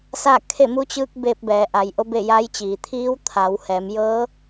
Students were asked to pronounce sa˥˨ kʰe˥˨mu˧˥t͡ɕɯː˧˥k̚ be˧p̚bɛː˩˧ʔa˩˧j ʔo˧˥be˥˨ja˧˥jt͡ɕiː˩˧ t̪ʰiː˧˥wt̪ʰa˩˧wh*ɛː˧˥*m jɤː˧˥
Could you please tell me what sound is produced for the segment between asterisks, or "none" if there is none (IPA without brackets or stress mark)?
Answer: ɛː˩˧